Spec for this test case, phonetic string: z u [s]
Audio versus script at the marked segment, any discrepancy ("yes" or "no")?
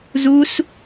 no